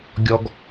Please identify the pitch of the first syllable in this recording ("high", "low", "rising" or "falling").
high